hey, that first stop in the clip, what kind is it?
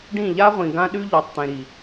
plain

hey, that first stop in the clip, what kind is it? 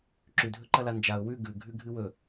click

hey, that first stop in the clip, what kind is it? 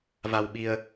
implosive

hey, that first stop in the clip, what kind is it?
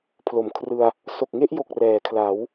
aspirated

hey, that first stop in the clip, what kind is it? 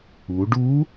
plain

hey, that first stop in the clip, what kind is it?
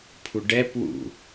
aspirated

